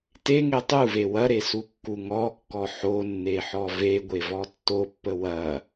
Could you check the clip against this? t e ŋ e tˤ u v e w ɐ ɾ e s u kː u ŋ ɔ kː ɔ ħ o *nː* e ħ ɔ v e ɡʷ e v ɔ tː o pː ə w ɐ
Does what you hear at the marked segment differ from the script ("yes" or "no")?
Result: no